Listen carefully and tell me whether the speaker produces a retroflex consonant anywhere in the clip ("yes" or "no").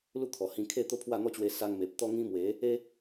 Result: no